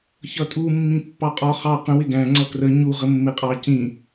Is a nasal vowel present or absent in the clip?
present